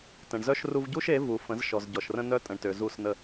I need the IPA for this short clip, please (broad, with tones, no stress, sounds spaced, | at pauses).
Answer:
t ə̃˨ ɳ z œ˦ ʃ r u˧ v ɟ u˦ ʃ e˨˦ v u˨ f ə̃˨˦ z ʃ ɔ˨ z ɟ ɔ˨ ʃ r ə̃˦ n œ˦ tʼ ə̃˨ ɳ t ø˨ z u˦˨ s n ə˦˨